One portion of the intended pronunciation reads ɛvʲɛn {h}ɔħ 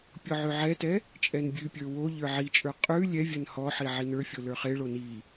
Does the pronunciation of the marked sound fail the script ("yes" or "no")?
no